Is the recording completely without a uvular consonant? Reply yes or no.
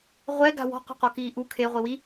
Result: no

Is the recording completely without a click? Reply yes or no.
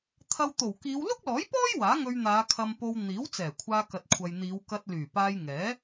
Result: yes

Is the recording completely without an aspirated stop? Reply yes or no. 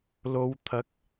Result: no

